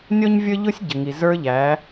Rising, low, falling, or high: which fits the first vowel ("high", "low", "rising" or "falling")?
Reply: high